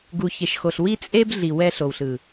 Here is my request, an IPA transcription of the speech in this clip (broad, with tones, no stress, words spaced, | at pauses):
ɡu˨çe˨ʃxo˨ɬ wi˦t͡sʼe˦b ɮi˨ wɛ˦ɬo˨wɬɯ˨